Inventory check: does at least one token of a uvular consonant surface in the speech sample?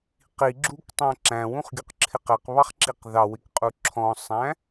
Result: yes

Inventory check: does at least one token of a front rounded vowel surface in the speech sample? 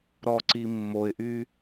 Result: yes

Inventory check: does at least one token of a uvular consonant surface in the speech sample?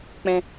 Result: no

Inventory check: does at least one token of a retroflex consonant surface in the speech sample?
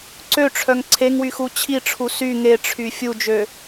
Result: yes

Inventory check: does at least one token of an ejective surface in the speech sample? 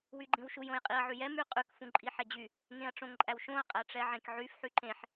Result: yes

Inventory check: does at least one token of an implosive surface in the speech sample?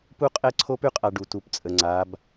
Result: no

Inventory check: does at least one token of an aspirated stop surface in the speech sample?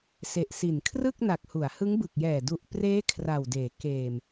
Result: yes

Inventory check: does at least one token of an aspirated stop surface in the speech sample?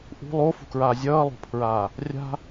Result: yes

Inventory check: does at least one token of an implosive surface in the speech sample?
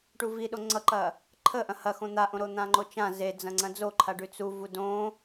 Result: yes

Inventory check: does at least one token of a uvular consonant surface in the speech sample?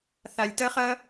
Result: yes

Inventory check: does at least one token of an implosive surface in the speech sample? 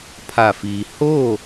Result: no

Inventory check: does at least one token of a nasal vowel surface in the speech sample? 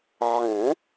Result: yes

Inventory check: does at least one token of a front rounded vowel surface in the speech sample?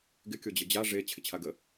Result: no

